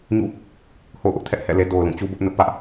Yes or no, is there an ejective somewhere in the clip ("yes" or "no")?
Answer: no